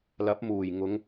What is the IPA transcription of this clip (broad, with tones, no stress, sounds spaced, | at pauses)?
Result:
l ɐ˨˥ p̚ m uː˨˩ j ŋ ʊ˨˧ ŋ